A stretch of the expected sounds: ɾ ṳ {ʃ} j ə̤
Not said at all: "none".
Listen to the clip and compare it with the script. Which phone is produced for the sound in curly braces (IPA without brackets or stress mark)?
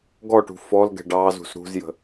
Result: z